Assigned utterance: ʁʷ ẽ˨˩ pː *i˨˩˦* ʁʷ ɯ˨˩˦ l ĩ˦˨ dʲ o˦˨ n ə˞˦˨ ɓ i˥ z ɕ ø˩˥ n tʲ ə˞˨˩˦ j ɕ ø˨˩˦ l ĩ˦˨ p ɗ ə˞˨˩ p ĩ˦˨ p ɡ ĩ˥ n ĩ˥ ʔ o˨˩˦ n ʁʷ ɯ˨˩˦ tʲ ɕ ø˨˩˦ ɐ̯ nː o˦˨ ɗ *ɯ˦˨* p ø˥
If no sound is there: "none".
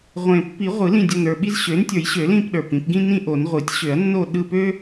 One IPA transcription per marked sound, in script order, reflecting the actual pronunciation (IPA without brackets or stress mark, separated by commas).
i˨˩˦, ɯ˦˨